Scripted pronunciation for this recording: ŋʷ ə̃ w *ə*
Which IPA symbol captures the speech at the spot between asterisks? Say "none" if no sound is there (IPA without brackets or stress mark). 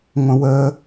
ə